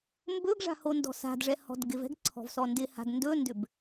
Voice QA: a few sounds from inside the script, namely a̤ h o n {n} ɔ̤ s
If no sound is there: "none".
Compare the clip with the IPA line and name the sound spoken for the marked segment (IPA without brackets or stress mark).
d